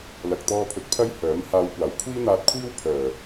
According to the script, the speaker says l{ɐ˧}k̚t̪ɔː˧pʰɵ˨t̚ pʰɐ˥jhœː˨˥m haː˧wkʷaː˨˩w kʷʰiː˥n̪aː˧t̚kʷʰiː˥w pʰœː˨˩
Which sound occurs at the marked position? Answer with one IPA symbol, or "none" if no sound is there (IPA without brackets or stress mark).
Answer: ɐ˨